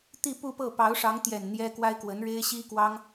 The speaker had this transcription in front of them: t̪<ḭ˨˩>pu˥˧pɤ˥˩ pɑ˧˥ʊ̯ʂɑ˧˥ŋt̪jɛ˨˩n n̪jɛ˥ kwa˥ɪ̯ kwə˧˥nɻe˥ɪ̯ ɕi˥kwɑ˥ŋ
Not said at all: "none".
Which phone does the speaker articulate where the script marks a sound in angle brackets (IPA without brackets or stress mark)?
i˥˧